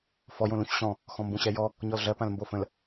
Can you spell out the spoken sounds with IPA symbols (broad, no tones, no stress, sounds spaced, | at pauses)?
f ɔ j õ l ũ ç ɕ ɔ̃ | x ɔ̃ m b ũ ɕ ɛ j ɔ | ɲ ɔ l ɮ ɜ p ã l m b o f ə̃ l